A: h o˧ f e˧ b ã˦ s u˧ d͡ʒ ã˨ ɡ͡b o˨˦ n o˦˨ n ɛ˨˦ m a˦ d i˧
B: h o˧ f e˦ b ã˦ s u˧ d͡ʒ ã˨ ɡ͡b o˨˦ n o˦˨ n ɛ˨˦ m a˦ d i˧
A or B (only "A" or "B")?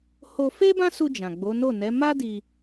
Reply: B